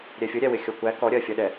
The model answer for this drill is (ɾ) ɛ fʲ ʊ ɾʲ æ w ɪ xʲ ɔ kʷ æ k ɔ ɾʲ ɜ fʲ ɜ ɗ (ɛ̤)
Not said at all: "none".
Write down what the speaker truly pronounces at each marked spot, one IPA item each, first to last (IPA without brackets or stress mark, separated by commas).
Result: ɾʲ, ɛ